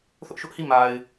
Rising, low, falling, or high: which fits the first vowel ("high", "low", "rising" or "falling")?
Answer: high